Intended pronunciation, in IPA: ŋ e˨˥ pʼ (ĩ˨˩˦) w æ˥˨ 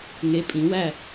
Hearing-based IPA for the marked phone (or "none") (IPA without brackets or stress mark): ĩ˨˩˦